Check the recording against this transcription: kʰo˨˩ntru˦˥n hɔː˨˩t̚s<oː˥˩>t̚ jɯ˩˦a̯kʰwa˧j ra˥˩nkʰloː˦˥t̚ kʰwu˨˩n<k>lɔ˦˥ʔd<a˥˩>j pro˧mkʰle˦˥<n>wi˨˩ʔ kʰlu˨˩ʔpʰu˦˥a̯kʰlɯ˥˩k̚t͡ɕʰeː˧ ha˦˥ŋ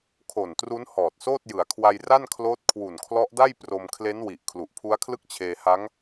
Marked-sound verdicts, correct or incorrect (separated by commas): correct, incorrect, correct, correct